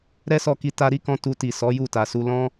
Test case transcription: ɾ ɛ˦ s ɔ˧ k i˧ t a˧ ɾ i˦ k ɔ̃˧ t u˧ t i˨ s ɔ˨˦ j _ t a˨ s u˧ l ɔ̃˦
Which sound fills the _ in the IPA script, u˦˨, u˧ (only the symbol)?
u˦˨